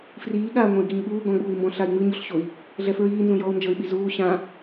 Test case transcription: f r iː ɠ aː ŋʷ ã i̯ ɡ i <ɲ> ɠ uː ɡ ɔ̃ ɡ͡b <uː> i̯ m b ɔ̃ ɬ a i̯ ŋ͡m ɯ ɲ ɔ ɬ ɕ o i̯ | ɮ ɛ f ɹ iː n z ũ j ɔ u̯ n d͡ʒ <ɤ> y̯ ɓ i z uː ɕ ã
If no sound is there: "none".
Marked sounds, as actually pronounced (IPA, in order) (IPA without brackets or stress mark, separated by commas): ɲ, uː, ɤ